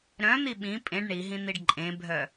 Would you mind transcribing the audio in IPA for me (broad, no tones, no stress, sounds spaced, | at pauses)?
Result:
ɾ œ̃ n̪ i ɓ ĩ pʼ ẽ ɖ ɳ i ɦ ĩ n̪ i ɖ ǃʼ ẽ bʱ œ